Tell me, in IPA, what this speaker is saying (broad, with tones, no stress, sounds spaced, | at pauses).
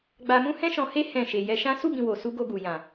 ɡ͡b a˧ m ũ˦ h ɛ̃˦ ʃ ɔ̃˧ h e˦ h ɛ̃˦˨ ʃ e˧ j ɛ˦ ʃ ã˦ s u˦˨ b ĩ˨ w o˨ s u˧ ɡ o˧ ɡ u˨ j ã˨